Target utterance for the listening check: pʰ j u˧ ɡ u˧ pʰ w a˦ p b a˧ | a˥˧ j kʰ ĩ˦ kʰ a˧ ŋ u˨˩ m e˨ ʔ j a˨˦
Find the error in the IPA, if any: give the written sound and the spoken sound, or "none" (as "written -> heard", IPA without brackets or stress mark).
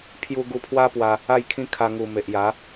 b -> w